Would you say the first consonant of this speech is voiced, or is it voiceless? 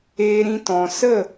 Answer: voiced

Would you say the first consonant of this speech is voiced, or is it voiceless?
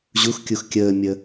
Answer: voiced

